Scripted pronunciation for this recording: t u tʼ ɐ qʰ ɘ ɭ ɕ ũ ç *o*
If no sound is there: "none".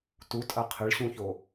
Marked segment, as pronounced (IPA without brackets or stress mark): o